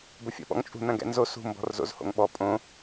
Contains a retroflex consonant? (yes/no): no